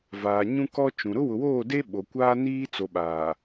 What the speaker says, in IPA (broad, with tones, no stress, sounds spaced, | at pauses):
v aː˨ ɲ ũ˦ k ɔ˦ t͡ʃ ũ˨ ɾ ʊ˦ w ʊ˨ w oː˦˨ d e˦ ɓ o˨ kʷ aː˦ n iː˦ t͡s o˨ ɓ aː˨